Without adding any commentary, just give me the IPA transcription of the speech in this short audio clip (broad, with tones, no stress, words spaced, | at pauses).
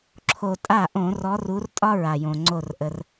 ǁʰo˩ tʼa˧˩ ʔõ˧˩˧rɔ˨˦ru˨˦rtʼɒ˥ ɹa˩jõ˩ ŋ͡ǀo˧˩rʔə˩r